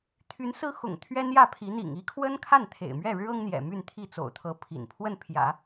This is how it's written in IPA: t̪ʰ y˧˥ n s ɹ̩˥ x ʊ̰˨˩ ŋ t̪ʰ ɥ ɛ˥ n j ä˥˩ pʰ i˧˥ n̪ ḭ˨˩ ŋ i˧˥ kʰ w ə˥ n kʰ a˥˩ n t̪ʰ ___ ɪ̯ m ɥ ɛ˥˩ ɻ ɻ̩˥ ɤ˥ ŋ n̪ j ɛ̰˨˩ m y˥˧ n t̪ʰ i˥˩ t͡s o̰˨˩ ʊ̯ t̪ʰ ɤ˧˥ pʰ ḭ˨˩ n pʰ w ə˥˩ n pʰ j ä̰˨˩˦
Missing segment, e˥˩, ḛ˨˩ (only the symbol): ḛ˨˩